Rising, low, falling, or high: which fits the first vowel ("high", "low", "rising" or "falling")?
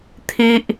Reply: high